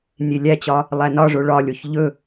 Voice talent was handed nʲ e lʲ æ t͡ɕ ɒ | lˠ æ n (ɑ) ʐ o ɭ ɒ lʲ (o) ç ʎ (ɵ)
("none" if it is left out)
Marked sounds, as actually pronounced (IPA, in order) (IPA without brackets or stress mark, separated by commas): ɒ, o, ɵ